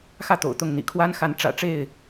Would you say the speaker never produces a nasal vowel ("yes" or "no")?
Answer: yes